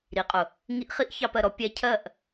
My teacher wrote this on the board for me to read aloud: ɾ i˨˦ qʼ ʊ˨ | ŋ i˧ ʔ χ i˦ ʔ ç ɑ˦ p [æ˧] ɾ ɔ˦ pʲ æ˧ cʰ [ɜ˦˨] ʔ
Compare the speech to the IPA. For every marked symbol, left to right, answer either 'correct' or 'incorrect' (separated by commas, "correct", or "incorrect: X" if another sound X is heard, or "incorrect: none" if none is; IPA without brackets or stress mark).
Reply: incorrect: ɜ˧, correct